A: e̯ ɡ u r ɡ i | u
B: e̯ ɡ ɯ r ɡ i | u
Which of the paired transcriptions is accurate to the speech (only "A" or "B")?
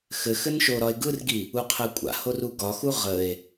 B